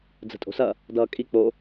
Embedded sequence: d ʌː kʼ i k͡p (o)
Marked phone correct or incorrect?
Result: correct